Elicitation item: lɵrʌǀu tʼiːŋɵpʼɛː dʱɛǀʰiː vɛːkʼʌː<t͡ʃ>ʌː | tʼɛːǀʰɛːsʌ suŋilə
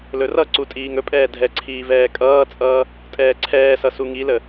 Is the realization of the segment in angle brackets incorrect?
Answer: yes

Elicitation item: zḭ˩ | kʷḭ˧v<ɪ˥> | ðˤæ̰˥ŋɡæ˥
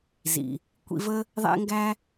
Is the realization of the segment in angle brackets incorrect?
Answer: yes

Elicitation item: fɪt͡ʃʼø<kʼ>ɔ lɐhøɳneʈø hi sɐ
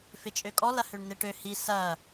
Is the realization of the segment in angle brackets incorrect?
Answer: no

